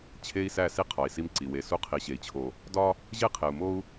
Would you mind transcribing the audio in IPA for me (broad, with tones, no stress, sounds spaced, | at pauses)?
t͡ɕʰ e˦ i̯ s æ˦˨ s i˦ qʰ ɒ˨ i̯ s i˦ m ǀ i˨ w e˨ s u˦ qʰ i˨ ɕ e˨ i̯ t͡ɕʰ o˨ | d ɒ˦ | ʑ e˦ qʰ e˨ u̯ m o˦ u̯